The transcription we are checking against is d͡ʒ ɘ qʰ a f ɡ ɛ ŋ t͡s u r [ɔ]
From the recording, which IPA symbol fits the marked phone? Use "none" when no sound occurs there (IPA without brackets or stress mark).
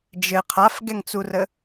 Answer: ə